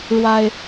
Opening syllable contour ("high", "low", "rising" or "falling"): high